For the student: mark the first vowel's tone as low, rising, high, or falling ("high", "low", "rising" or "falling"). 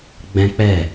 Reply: high